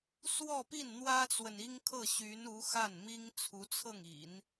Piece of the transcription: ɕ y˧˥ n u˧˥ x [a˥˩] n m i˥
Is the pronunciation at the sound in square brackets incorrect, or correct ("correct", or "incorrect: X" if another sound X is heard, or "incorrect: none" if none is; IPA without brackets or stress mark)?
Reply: correct